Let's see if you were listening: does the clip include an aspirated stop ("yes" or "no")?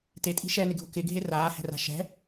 no